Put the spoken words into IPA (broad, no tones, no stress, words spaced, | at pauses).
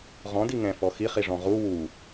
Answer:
ʁɔ̃ diŋɛ̃fɔ xiχiʐɔ̃ ʁu wu